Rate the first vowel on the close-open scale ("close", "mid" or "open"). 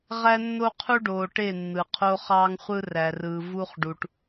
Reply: open